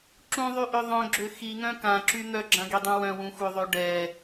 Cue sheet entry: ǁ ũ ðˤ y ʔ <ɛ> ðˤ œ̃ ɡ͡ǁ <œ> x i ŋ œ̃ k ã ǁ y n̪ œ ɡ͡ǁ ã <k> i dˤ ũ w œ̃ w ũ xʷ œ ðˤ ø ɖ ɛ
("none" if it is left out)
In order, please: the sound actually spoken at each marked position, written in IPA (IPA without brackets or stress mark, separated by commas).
ø, ø, ɡ